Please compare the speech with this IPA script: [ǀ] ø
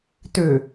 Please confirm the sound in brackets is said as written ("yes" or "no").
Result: no